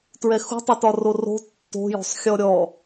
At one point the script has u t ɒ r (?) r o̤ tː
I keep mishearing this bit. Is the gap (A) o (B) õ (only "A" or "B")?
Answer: A